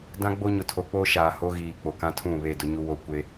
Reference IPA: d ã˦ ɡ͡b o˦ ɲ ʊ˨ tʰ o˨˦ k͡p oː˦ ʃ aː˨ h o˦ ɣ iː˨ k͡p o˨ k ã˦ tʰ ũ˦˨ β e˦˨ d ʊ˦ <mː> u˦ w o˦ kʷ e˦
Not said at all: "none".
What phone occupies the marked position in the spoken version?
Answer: ɲ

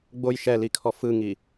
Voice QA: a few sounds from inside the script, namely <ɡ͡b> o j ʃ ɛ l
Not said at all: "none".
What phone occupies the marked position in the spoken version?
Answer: ɡ͡b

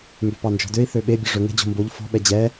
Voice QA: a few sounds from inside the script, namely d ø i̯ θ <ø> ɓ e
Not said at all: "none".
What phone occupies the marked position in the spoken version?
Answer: ø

